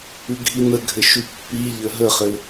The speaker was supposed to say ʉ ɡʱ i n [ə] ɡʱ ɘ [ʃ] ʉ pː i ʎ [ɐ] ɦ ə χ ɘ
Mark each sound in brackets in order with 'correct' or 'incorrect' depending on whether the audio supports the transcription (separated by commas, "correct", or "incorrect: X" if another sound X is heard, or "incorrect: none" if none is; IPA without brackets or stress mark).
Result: correct, correct, incorrect: ə